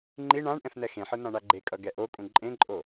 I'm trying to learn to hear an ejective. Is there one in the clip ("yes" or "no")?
yes